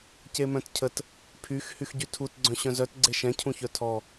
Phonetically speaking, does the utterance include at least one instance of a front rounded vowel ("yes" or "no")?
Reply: yes